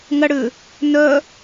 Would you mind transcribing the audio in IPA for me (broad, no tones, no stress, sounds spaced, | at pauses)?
ŋ ɐ ɽ ʏ | n œ